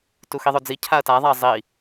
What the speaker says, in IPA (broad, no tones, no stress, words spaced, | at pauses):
tuxiðˤod͡zi cʰaɐ̯taðˤaɐ̯ zˤi